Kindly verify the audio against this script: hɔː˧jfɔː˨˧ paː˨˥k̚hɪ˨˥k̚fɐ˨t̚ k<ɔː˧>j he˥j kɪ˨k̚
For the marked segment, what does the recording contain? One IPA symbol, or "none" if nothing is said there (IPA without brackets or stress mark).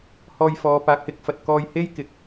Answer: ɔː˧